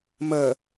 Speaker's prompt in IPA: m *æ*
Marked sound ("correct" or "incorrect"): incorrect